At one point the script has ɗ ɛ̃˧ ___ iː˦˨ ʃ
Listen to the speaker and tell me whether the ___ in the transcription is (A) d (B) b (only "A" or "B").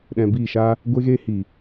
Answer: B